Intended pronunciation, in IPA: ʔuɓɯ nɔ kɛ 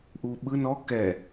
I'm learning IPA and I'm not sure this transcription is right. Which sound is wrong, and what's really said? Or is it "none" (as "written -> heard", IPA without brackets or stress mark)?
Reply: none